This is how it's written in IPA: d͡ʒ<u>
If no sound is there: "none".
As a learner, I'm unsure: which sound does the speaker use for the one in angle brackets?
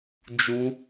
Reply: u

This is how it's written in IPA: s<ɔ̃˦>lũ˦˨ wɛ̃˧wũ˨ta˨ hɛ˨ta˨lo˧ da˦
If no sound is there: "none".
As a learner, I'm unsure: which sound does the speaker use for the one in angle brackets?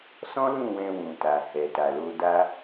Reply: ɔ̃˦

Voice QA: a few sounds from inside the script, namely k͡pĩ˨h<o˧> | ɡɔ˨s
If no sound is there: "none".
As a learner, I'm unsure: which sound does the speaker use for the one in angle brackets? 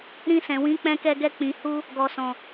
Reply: u˧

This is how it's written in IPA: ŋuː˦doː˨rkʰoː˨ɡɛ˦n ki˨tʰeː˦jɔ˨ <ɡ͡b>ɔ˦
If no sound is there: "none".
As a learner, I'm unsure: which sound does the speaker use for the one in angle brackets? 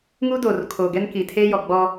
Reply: ɡ͡b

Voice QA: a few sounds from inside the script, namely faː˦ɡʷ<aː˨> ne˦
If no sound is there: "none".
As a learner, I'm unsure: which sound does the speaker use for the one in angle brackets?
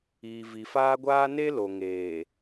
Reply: aː˦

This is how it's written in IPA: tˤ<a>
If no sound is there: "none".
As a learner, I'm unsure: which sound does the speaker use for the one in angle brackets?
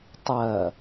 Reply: ɐ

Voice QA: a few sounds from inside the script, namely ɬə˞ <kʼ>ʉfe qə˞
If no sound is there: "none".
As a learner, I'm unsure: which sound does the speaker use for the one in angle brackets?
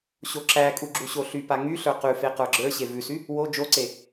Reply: q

